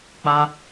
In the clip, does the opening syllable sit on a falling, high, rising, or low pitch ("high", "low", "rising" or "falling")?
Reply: high